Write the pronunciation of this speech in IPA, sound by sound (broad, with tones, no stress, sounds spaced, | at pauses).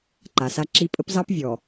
ǃ a˨ s a˦ ǁ i˦ pʼ ə˦ p z ɑ˦ p vʲ ɔ˨